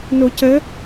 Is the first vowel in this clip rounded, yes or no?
yes